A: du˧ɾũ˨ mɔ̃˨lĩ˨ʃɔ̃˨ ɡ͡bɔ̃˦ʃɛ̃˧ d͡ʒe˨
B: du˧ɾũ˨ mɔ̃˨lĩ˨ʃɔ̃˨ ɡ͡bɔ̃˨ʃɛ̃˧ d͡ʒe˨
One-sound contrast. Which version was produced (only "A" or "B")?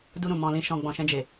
B